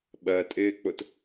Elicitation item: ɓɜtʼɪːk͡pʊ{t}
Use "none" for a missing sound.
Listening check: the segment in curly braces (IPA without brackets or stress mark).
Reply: t